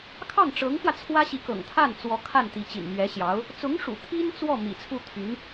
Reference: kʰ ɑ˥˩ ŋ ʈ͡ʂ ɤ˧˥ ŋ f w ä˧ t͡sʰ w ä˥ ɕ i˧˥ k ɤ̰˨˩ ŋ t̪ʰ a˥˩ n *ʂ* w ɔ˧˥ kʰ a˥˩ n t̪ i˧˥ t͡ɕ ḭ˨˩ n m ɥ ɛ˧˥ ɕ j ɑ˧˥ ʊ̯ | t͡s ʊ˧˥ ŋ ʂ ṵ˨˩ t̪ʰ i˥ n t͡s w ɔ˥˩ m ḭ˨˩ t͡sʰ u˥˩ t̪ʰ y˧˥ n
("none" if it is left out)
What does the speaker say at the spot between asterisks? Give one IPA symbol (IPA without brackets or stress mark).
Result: t͡s